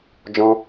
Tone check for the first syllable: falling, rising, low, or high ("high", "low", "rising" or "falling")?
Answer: high